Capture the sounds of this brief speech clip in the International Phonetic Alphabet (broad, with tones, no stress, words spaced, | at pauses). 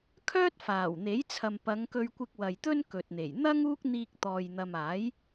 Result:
kʰœː˥t̚faː˨˩wn̪e˨˥j t͡sʰɐ˨mpɐ˨˧ŋkɵ˧ɥkʷɪ˧k̚ wɐ˨jt̪ɵ˥n kɵ˨t̚n̪e˨˩j n̪ɐ˥ŋ uː˥k̚n̪iː˧k̚t̪ɔː˨jn̪ɐ˨m aː˨˥j